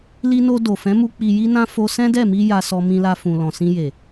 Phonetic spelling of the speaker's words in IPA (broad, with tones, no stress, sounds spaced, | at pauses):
l i˧ n o˧ d o˨ f ɛ̃˨˦ m u˧ k͡p i˧ j i˦ n ã˦ f o˦ s ɛ̃˦ d ɛ˦˨ m i˧ j a˧ s ɔ˧ m ĩ˧ l a˧ f ũ˨ l ɔ̃˨ s ĩ˧ j e˨